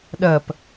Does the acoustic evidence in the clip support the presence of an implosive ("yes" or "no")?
yes